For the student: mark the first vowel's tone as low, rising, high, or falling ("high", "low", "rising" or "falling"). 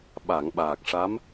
low